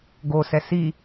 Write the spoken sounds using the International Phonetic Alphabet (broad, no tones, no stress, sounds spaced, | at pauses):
ɡ o s ɛ s i